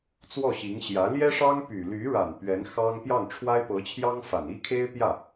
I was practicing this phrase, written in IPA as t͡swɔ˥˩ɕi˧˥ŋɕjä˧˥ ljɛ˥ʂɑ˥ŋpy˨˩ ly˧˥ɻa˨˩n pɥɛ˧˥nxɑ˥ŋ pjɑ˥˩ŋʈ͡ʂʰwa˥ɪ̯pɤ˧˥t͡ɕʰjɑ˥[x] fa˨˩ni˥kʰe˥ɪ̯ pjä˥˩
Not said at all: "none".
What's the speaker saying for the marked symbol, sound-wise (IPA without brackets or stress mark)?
ŋ